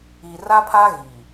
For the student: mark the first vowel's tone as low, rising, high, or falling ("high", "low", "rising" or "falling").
low